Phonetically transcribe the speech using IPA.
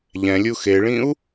ʎ ɛ̃ lʲ u x e ɭ ĩ u̯

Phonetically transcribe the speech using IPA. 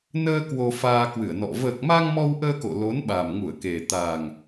n əː˧ k w o˧ f aː˧ k w ɨ˧˩ ə̯ n ɔ̰˧˨ v əː˨˩ k̚ m a˧ ŋ m ɔ˧ w ʔ əː˧ k o̰˧˨ l o˨˦ n ɓ a˨˩ m ŋ u˧˩ ə̯ k e˨˩ t̪ a˨˩ ŋ

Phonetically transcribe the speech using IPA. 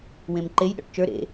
w ẽ m ǃ e j ɗ ɔ̰ ʈ t͡ʃ ə˞ ɾ ḛ

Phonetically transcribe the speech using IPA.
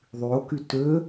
ðˤ y o̯ k y t ø

